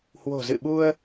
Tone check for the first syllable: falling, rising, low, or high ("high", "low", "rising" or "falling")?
low